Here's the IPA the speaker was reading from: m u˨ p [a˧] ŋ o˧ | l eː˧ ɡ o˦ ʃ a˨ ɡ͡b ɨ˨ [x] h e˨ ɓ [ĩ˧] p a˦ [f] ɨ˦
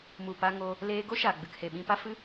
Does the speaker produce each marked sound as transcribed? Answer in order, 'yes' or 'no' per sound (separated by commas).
yes, no, yes, yes